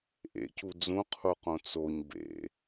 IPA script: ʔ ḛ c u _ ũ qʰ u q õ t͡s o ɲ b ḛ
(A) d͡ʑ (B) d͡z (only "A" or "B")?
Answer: B